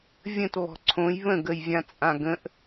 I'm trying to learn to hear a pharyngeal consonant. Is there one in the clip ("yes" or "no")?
no